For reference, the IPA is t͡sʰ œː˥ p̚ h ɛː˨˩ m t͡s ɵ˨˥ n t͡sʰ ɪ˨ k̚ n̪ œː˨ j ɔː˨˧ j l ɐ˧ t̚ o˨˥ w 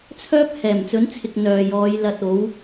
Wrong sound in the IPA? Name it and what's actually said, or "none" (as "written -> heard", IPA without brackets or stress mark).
none